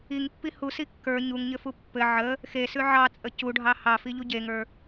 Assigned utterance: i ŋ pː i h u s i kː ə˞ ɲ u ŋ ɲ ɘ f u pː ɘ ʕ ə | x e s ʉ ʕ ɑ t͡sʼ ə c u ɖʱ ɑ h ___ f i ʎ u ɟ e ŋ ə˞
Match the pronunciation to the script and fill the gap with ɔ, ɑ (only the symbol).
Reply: ɑ